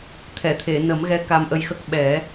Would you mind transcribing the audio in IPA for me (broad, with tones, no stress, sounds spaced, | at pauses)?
t̪ʰ ɛ˨˩˨ t̪ʰ e˨˩˨ n ə˨˩˦ m ɣ ɛ˧˥ k a˧ m ʔ ə˧ j x ə˦˥ k̚ ɓ ɛ˨˩˦